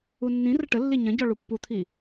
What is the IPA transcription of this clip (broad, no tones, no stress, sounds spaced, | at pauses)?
u nː ĩ r ə ʈ ə lː i ɲ ɐ̃ ɟ ɔ ɭ u pː u t̪ʰ i